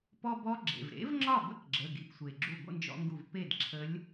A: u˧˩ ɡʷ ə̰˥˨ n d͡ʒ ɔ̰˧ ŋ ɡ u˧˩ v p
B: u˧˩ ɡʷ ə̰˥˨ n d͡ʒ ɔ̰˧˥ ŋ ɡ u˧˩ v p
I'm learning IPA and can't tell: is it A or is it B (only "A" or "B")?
A